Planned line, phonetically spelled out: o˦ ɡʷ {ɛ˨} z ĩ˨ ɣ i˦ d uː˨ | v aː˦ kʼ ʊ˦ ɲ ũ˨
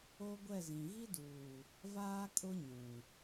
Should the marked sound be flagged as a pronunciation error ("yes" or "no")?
yes